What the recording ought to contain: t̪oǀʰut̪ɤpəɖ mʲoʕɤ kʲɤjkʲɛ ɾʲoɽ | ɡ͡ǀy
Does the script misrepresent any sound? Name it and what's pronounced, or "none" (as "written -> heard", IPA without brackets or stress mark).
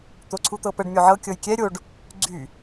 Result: ɽ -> ɖ